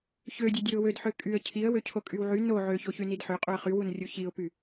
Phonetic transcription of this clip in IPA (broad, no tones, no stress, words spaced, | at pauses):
çødʲø dʲøʊ̯wødħø kʼyə̯ cʰiə̯wøcʰo kʼywʕy no ʕøçoçy nidħøqʼuə̯ χywunrʲu çiʊ̯py